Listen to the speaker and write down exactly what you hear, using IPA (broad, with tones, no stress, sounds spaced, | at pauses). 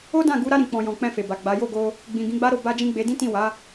o˦ d ã˦˨ ɡ u˨˦ ɾ a˧ ɾ ĩ˨ k͡p ɔ̃˨ j ɔ̃˨ k͡p ɛ̃˧ f e˨ b a˨ ɡ͡b a˨˦ j o˦˨ ɡ o˧ | ɡ͡b ĩ˨ ɡ ĩ˨˦ ɡ͡b a˦ ɾ o˦˨ b a˧ d͡ʒ ĩ˧ ɡ͡b e˧ d ĩ˦ t ĩ˦˨ w a˨˦